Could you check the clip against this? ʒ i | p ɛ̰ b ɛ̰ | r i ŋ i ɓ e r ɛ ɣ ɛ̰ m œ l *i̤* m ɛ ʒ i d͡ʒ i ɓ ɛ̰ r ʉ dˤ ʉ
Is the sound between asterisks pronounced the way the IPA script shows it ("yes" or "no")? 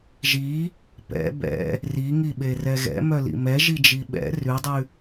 no